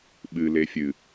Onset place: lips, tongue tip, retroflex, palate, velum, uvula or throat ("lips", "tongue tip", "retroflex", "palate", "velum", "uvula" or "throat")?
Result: lips